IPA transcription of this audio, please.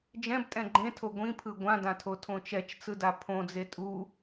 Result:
d͡ʒ ɛ̃ b tʼ ɛ̃ ɡ͡ǃ ẽ tʰ o ɡʷ ĩ pʰ ɯ ɡʷ ã d ã tʰ o tʰ õ t͡ʃ ɛ t͡ʃ t͡s ɯ d a pʰ õ d͡z e tʼ u

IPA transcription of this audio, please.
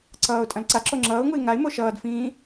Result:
ǀ ʌː ʊ̯ tʼ ɐ̃ l ǀ a ǁ o ŋ͡ǁ ʌː ʊ̯ ŋ u ɪ̯ ŋ a ɪ̯ m o ʃ ʌː d f ĩː

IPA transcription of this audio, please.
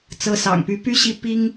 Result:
t͡s ɤ˧˥ s ɑ̰˨˩ ŋ p y˧˥ p y˥ ɕ i˥˩ p i˥ ŋ

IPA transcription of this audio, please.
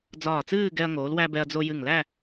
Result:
d͡z ɒː˧˩ t͡s ɨː˥˧ ɡ ɛ˧ ɐ̯ ŋ oː˩˧ l w æ˧ b ɛ˧ ɐ̯ d͡z o˧ j ɨ˧˩ ŋ l æ˥˧

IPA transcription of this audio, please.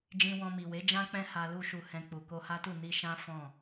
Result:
d͡ʒ ĩ˧ w ɔ̃˧ m i˨ w e˨˦ d͡ʒ ã˦ k͡p ɛ̃˦ h a˧ l u˧ ʃ u˧ h ɛ̃˧ k͡p u˨ k o˧ h a˦ t u˦˨ n i˧ ʃ ã˦ f ɔ̃˦˨

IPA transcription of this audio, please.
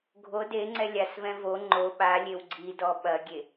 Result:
ɡʱ o d e ŋ͡ǀ ɛ lʲ a s v ɛ̃ v o ŋ͡ǃ o ɓ a lʲ e w ɡ͡ǀ i d ɔ ɓ ɐ ɡʲ e

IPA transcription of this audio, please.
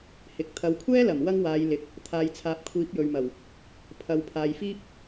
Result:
h ɪ˨ k̚ t̪ʰ ɐ˨ w kʷʰ ɛː˥ l ɐ˨˩ m w ɐ˥ ŋ w aː˨˧ j l ɪ˨˥ k̚ | t̪ʰ aː˨ j t͡sʰ aː˨ p̚ kʷʰ iː˨˥ p̚ j ɵ˨ ɥ m ɐ˨˩ w | pʰ ɐ˨ w pʰ aː˨ j f iː˥ p̚

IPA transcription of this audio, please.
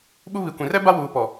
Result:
ɓ u˦ β i˨ kʷ ĩ˨ r ɛ˦ b a˦ w uː˨ p ɔ˨

